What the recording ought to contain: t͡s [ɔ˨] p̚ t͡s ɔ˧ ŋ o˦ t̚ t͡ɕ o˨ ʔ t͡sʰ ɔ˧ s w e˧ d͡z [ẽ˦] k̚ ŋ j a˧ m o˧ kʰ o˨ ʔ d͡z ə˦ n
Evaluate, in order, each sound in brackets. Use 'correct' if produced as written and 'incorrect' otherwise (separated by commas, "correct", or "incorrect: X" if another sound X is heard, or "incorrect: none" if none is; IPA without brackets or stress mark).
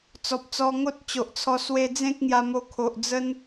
correct, correct